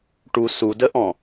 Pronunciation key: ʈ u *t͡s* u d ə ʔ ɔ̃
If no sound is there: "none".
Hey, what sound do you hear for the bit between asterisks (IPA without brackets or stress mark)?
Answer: s